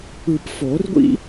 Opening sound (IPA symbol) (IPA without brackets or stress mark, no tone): ɯ